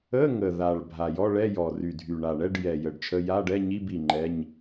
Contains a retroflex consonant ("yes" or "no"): yes